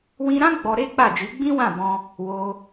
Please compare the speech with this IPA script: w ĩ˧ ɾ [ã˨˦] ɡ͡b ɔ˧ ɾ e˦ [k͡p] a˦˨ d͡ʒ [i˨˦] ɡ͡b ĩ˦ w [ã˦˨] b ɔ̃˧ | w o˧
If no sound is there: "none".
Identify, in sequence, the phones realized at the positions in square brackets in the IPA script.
ã˦, k͡p, i˨˦, ã˦˨

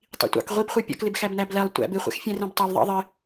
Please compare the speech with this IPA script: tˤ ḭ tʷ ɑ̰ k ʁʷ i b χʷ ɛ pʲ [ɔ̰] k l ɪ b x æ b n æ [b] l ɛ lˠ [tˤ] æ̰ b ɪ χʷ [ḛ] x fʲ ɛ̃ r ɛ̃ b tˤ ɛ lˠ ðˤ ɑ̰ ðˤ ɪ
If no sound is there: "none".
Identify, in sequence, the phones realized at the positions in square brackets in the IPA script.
ɔ̰, b, tʷ, ɛ̰

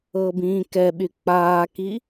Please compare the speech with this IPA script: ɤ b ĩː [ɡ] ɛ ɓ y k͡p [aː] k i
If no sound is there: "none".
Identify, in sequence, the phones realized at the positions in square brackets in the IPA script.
k, aː

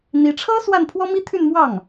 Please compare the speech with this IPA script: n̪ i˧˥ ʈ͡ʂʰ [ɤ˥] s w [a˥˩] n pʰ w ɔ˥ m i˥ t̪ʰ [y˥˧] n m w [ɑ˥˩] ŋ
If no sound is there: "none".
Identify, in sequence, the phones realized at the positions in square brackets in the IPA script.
ɤ˥, a˥˩, y˥˧, ɑ˥˩

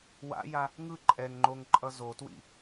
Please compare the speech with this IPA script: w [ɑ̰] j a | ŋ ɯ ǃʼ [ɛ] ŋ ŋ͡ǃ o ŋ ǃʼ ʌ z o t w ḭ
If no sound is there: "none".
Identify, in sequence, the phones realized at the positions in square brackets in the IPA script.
a̰, ɛ

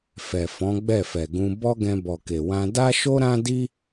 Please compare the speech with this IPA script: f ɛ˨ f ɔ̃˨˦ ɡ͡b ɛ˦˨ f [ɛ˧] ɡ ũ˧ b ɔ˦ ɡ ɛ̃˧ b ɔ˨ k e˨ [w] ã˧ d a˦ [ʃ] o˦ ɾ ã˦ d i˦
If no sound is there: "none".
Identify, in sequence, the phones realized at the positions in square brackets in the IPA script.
ɛ˨, w, ʃ

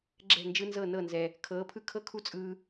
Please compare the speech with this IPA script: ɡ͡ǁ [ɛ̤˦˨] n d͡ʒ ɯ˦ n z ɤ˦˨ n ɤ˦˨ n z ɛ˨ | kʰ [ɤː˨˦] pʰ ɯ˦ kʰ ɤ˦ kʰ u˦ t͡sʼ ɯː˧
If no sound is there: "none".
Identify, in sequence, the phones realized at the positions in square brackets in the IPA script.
ɛ̤˦˨, ɤː˨˦

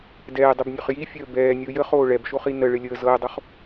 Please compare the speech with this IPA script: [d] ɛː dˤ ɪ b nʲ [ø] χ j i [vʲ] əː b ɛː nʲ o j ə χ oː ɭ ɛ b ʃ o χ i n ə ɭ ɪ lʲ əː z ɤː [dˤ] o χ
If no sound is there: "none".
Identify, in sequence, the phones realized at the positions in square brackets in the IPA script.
d, ø, fʲ, dˤ

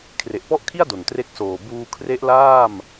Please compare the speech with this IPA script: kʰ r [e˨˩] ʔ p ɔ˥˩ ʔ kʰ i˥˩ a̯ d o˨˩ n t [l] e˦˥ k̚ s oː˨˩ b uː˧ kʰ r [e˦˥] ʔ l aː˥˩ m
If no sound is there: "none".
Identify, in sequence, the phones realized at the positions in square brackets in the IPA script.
e˨˩, r, e˦˥

